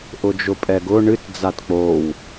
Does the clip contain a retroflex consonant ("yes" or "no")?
yes